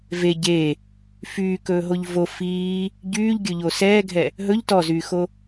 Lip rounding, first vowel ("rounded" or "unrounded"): unrounded